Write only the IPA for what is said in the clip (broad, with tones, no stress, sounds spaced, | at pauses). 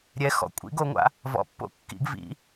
ɾʲ ɛ˩˥ x ɔ̰˩˧ kʷʼ ḭ˩˥ ɡ o˩˧ ŋʷ a̰˩˧ | v ɔ̰˩˥ pː o̰˩˥ kː ḭ˩˥ ɡ v ḭ˩˧